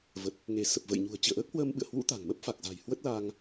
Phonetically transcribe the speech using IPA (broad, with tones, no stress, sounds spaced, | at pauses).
v ə˨˩ t̚ | ŋ e˧˩ s ə˨˩ p̚ v ə̰˧˨ j ɲ ṳ˨˩ ə̯ t͡ɕ ḭ˧˨ ə̯ ʔ əː˦˥ k̚ h w əː˧ m ɓ ɨ̰˧˨ ə̯ h w ṵ˧˥ t̪ a̤˨˩ ŋ m ə˦˥ p̚ f a˨˩ k̚ z a̤˨˩ j h w ə˦˥ t̚ l a˧ ŋ